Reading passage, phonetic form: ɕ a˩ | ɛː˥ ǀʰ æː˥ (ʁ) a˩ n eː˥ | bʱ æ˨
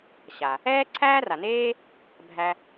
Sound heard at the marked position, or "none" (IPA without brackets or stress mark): r